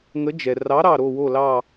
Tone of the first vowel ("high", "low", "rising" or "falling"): rising